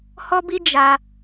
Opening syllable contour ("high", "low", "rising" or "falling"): high